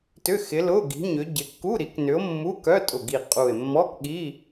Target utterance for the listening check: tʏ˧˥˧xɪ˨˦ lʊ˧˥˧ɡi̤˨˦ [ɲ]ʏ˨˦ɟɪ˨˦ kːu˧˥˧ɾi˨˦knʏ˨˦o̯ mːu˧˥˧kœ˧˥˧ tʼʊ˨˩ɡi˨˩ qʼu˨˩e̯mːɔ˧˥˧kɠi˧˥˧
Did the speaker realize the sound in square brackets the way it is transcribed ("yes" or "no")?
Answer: yes